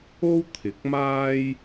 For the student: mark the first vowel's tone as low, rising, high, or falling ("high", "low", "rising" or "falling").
high